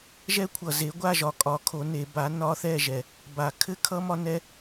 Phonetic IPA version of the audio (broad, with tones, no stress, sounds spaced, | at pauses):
ʒ ɛ˦˥ kʷʰ ʌ˨ z e˨˥ ɡʷ a˥˨ ʒ ɒ˨˥ kʼ ɒ˨˥ kʰ o˨˥ n e˨˩˦ b a˨˥ n ɒ˦˥ θ ɛ˥˨ ʒ ɛ˨ | b a˨˩˦ kʰ ɘ˦˥ kʰ ʌ˦˥ m ɒ˦˥ n ɛ˦˥